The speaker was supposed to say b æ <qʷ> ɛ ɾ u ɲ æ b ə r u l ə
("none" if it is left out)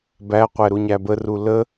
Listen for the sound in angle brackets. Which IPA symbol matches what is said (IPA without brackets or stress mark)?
qʷ